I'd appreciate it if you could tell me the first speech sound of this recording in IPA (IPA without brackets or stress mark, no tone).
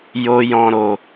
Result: j